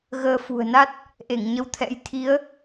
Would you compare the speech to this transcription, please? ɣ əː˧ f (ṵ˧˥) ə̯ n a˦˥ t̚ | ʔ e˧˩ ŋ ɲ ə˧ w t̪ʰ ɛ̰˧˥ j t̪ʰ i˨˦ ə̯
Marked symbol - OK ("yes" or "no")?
no